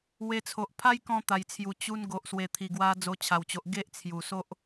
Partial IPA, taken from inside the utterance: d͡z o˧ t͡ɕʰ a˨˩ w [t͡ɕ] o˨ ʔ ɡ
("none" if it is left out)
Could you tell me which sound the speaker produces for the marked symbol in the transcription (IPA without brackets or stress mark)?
t͡ɕ